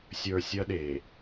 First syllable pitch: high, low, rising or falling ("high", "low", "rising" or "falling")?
low